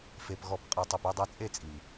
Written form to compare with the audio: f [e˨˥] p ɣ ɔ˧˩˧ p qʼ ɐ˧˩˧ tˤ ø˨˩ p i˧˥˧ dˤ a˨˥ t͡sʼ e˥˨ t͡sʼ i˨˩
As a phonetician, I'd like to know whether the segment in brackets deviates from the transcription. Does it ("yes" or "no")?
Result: yes